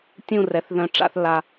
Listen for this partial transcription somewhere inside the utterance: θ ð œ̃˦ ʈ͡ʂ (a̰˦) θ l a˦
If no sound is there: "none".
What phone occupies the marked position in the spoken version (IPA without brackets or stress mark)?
a̰˦